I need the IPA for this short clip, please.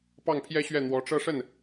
p ɑ˥˩ ŋ pʰ j ɛ˥ ɕ ɥ ɛ˥˩ n̪ w ɔ˧˥ ʈ͡ʂ ɤ˥˧ ʂ ə˥˩ n

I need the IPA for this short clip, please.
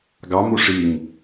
ɡ ɑ m u ʂ i ŋ

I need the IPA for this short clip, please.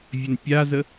vʲ ɘ n pʲ a z ə

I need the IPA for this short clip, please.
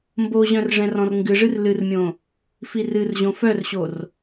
m b o ʑ œ̃ r ʐ ɛ̃ r ɔ̃ r ŋ ɡ ɨ ʐ ɨ r l ɨ r mʲ õ | f i r ɨ r ʑ õ f œ r ɕ o r

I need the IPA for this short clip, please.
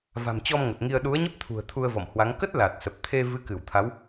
v a̤˨˩ m t͡ɕ ɔ˧ m ŋ ə˨˩ t̚ ŋ i˧ ə̯ ɗ u˨˦ ə̯ ɲ ə˦˥ p̚ t̪ʰ ṳ˨˩ ə̯ t̪ʰ u˧ ə̯ v ɔ̰˧˨ m h w a˨˦ ŋ k ə˦˥ t̚ l a˨˩ t̚ s ə˨˩ p̚ t̪ʰ e˧ v ɨ˨˦ k ɨ˧˩ w t̪ʰ a˨˦ w

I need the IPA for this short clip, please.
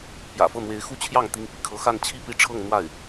p j ä̰˨˩ f ɤ˥˩ n̪ w e˧˥ ɪ̯ x u˥ t͡ɕʰ j ɑ˥˩ ŋ t̪ i˥ ŋ p ḭ˨˩ kʰ ɤ˥ x a˥˧ n t͡ɕʰ i˥˧ p i˥˧ ʈ͡ʂʰ ɤ˥˧ ŋ n̪ w a˥˩ ɪ̯

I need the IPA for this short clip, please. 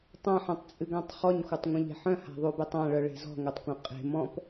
tˤ ã ħ œ̃ tˤ t͡sʼ ɨ ɡ ã tˤ χ ɔ ɲ xʷ œ tˤ ŋʷ œ̃ ʎ e̤ ħ œ̃ h a̤ ðˤ u b e tˤ ã ɭ œ ɭ e̤ z ɔ̤ ŋ œ tˤ kʷ œ̃ qʼ e̤ m ɔ̃ p

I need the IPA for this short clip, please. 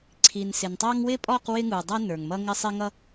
ǀʰ i˨ n s ɪ˨ n tˤ ɑ˦ ŋ w ɪ˦ pʼ ɔ˦˨ q w ɪ˦ ŋ u˨ dˤ ʌ˦ n ə˞˨ ŋ m ʌ˦ ŋ ɪ˦ sˤ ɪ˦ ŋ ʌ˦

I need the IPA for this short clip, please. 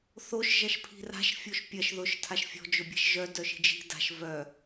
θ o ʃ ʒ ɐ ʃ pʰ i̤ r a̤ ʃ fʲ o ʃ pʲ ɐ ʃ ð ʊ ʃ tʰ a ʃ fʲ ɔ̤ d͡ʒ ʊ bʲ ɛ̤ ʃ ʒ œ d œ ʃ i̤ d͡ʒ i̤ d a̤ ʃ v œ

